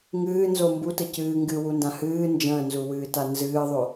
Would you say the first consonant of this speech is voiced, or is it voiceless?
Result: voiced